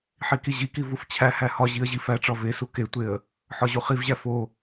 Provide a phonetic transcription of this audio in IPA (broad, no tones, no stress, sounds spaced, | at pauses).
ħ i k i ʑ i k i v u f t͡ɕʰ æ h æ h ɒ ʑ i ə̯ ʑ i f æ ʈ͡ʂ ɒ v e s u k e tʷ e ə̯ | ħ ɒ ʑ u χ i v ʑ æ f o